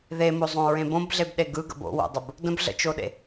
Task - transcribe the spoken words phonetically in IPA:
ðemozˤõɹẽ bõbɮebɗe ɡɯɡə̰ bo̰wo̰dˤəb | də̃bɮə̰t͡ʃoɗḛ

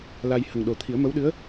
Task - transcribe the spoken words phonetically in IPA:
la˧j hə˨˩ŋɗo˨˩ t̪ʰi˨˩˦ə̯mə˧˥wɗɨ˧˥ə̯

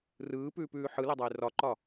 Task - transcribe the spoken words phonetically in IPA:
rɯːpʉːpʉː ħɯledˤaɪ̯ rɒǃɒ

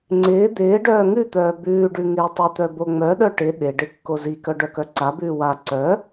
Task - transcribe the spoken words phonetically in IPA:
ŋ͡ǀɪː d̪ɪː ɖœːŋʉt̪œː bʉːɖʉ ŋɪːtˤɪt̪œ boŋ͡mœɗœ ʈɪ ɗɪɖɪ kːozikœ ɖœkœǀabʉː wa ǀœ

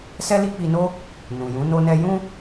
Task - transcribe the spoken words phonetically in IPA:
sɛ˦li˦k͡pi˧no˦ | nũ˨jũ˨˦ no˧nɛ˧ jũ˦

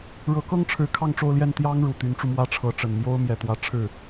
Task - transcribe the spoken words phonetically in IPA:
ɻɤ˧˥kɤ˥ŋʈ͡ʂʰɻ̩˧˥ kʰɑ˥˧ŋʈ͡ʂo˥˧ʊ̯ljɛ˥˩n t̪jɑ˥ŋ ɻu˨˩t̪y˧˥nʈ͡ʂu˧ mwä˥ʈ͡ʂʰɤ˧˥ ʈ͡ʂə˨˩n mjo˥ʊ̯ mjɛ˨˩t̪wä˧˥ ʈ͡ʂʰɻ̩˥˩

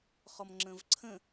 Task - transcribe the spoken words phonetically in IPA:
χɔmŋ͡ǁə̃vǀʰə̃

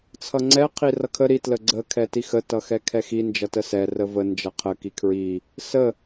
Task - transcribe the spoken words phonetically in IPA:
t͡sʰʌŋ͡ǀɛ qʰirʌkʰə ɾi tləɡ͡ǀə kʰɛtixə tʌxɛkʰɛxi nd͡ʒʌtəsɛ rəvə nd͡ʒʌqʰə kikʰɹi | sə

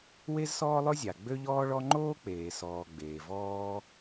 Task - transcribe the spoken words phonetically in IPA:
we˥zsɔː˥lˠɵ˥zʲa˩ ɡ͡bø˥ʎɔː˥ɭɔ˥ ŋ͡ǃoː˥k͡peː˩ sɔː˩ ɡ͡beː˩vɔː˥

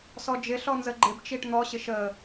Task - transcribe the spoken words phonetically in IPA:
sɔd͡ʒɪɬɔ nzəɡ͡ǃɪbt͡ʃiʈ n̪ɔɕɪ ʃə

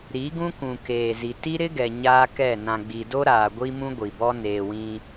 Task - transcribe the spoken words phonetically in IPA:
ɾi˨˦ ɡũ˦kũ˨keː˨zi˨ ti˦ɾɪ˦ɡɛ˨ ɲaː˦kɛ˦˨ nã˨ɡ͡bi˨do˦ɾaː˨ ɡʷi˦mũ˦ ɡʷi˨bɔ˦ neː˨wĩ˦

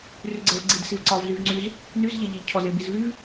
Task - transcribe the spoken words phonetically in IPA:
ryɡ͡ǀɛvɡ͡ǀid sivǀɒv zyvŋ͡ǀyz | nyz ʎɛʎeʎcʰɔz ebizvyv

